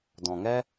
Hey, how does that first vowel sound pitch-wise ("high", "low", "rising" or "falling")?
low